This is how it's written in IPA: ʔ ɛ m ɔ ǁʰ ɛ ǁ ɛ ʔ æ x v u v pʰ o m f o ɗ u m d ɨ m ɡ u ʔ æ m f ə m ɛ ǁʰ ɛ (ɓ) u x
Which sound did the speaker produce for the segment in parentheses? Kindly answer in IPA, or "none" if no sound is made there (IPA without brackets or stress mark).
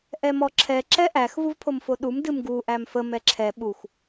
ɓ